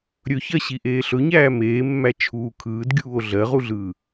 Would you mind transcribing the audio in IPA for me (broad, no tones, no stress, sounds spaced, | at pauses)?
ɾʲ ɵ ç ɜ ɕ i ʔ eː ɬ ɵ ɲ æː m eː mː æ t͡ʃʰ uː kʰ ɯː d ɡʲ uː o̯ ɮ ɜ ʁ u ɮ ɯː